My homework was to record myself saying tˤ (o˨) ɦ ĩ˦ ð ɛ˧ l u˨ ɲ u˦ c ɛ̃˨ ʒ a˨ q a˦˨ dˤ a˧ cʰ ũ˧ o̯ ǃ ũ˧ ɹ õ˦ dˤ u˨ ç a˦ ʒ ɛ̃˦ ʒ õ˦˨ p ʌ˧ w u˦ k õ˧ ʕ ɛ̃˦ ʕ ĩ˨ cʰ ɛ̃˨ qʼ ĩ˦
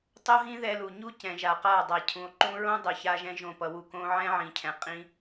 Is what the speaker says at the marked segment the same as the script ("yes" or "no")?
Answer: no